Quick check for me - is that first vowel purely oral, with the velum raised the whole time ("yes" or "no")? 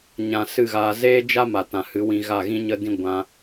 no